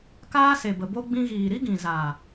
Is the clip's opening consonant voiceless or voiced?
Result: voiceless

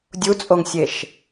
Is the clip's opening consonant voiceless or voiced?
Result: voiced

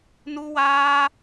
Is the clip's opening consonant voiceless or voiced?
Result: voiced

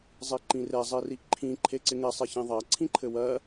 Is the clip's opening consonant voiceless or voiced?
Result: voiced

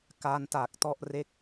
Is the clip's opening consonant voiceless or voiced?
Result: voiceless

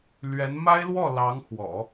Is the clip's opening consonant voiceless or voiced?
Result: voiced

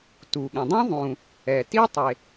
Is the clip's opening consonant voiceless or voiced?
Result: voiceless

